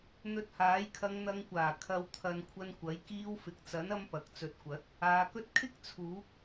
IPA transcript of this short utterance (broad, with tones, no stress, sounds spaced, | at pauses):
n̪ ɵ˧ t̚ h aː˨˥ j kʰ ɐ˧ ŋ n̪ ɐ˨˧ ŋ kʷ aː˨˩ kʰ ɐ˨˧ w t̪ʰ ɐ˨ n kʷʰ ɐ˧ n kʷ ɐ˨˥ j k iː˧ w f ɪ˨ k̚ t͡s ɐ˨˥ n ɐ˥ m p ɐ˨ k̚ t͡s ɵ˨˥ t̚ kʷ ɐ˨˥ t̚ | aː˨˧ k ɵ˥ t̚ kʰ ɪ˥ k̚ t͡sʰ uː˨˥ k̚